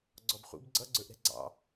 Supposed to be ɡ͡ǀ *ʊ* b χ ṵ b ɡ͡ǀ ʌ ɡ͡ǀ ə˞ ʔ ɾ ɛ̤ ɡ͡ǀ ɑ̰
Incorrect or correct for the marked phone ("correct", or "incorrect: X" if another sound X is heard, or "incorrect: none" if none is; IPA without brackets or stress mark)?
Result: incorrect: ɔ